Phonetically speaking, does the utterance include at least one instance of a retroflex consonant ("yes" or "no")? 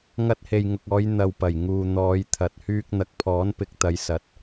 no